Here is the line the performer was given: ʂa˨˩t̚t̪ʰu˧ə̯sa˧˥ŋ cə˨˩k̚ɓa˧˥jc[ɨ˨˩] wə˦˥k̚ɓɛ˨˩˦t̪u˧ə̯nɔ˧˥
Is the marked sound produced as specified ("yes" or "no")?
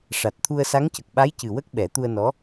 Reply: yes